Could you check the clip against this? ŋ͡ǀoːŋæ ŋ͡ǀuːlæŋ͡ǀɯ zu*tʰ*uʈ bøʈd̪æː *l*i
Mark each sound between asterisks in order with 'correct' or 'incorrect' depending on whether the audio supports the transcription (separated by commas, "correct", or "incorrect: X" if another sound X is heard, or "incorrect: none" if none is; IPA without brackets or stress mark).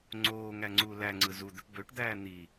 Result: incorrect: d̪, incorrect: n̪